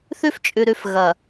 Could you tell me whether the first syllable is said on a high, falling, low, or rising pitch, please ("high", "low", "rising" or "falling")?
high